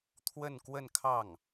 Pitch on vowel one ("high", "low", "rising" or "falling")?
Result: falling